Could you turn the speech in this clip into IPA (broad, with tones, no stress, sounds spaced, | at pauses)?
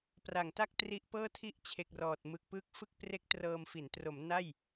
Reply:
p r a˨˩ ŋ t a˥˩ k̚ t r i˦˥ ʔ p ɤː˥˩ tʰ i˥˩ ʔ t͡ɕʰ e˨˩ k̚ r ɔː˨˩ t̚ m ɯ˨˩ k̚ p ɯː˦˥ k̚ f ɯ˥˩ k̚ p r e˦˥ k̚ t r ɤː˧ m f i˩˦ n t r o˩˦ m n a˥˩ j